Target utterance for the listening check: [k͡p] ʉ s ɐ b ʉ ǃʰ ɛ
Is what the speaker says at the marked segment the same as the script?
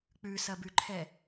yes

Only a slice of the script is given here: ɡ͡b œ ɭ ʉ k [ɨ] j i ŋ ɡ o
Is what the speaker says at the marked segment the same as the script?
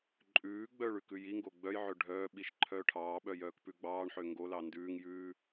no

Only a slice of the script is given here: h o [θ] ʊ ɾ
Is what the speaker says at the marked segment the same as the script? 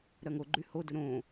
no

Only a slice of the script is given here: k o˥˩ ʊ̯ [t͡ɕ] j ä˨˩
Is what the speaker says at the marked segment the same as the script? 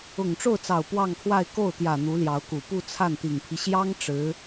no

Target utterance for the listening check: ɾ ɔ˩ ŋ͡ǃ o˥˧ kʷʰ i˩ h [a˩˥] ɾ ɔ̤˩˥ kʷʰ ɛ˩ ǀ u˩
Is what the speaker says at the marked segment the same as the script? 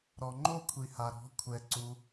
no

